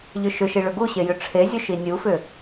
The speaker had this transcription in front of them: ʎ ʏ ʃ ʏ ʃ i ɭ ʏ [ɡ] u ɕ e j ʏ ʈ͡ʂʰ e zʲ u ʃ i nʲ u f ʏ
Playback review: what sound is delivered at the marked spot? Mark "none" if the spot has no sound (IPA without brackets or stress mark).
ɡ